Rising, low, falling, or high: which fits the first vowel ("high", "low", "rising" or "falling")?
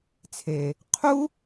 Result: low